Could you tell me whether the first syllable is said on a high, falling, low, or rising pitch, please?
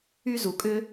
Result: high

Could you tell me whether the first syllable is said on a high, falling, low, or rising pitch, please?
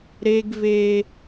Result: high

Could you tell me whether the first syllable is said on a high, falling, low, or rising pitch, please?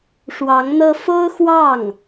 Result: rising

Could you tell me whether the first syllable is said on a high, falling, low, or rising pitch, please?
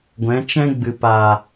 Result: rising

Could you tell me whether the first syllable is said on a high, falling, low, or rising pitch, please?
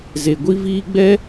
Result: low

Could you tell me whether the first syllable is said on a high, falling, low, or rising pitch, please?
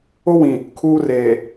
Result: high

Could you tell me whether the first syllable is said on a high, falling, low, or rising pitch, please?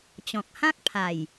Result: low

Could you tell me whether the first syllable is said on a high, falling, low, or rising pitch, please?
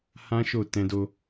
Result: high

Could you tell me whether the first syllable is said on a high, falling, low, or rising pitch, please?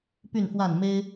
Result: falling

